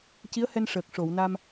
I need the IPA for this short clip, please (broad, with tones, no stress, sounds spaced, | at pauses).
c i˧˥ ə̯ h ɛ˧ n ʂ əː˨˩ k̚ ʂ o˨˩˨ w n a˧ m